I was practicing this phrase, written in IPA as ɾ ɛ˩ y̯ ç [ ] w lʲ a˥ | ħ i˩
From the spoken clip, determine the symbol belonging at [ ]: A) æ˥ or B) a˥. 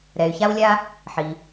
B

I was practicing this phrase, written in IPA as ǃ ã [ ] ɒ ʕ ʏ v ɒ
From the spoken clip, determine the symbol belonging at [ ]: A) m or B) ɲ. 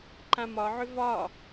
A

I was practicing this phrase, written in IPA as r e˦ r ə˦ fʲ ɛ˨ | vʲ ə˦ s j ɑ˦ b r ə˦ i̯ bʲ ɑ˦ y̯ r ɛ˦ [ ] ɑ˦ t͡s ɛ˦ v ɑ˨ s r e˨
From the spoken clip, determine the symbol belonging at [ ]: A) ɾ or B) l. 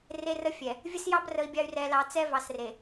B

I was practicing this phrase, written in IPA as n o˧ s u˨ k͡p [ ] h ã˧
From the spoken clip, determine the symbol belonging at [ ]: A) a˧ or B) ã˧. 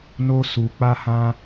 A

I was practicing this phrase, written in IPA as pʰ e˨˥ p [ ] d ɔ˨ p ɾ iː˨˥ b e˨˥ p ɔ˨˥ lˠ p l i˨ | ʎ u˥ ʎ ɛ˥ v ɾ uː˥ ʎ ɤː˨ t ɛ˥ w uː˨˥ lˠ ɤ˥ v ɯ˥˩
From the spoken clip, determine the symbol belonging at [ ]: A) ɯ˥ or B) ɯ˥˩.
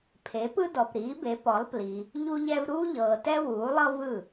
A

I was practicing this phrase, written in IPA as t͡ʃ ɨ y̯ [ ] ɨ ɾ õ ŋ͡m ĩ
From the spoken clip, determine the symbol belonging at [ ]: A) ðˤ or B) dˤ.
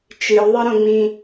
A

